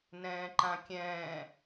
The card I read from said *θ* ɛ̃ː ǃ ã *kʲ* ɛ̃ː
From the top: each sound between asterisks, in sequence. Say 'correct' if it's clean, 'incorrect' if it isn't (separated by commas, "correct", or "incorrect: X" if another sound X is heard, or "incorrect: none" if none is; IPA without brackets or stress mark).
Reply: incorrect: n, correct